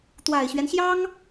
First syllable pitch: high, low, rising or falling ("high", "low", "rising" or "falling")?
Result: low